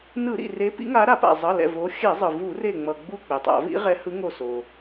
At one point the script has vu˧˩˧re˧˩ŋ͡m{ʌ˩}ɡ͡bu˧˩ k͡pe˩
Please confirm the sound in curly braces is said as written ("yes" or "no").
yes